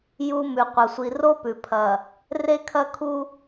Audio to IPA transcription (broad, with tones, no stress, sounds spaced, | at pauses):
j u˨ m ʉ˨ qʷ ɐ˨ sʷ i˨ r o˦ p ʉ˨ pʰ ɐ˨ | r e˦ kʰ ɐ˦ kʰ u˦